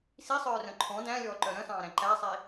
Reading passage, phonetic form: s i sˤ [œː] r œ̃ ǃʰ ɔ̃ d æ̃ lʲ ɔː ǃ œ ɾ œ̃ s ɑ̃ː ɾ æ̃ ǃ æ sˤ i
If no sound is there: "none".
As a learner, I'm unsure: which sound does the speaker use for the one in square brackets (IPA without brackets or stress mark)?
œː